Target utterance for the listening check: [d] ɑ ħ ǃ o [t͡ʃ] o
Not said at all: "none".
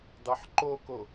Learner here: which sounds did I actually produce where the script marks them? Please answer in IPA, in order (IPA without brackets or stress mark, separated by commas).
d, k